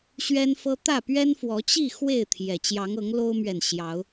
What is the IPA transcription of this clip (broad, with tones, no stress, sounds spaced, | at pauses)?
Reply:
ɕ ɥ ɛ˦ n f ɤ˦ t̪ ä˥˨ p ɥ ɛ˦ n f w ɔ˨˦ t͡ɕ i˥˨ x w e˥˨ ɪ̯ t̪ʰ j ɛ˨˩ t͡ɕ j ɑ˨˦ ŋ ɤ˨˦ ŋ l o˦ ʊ̯ m ɥ ɛ˨ n ɕ j ɑ˨˦ ʊ̯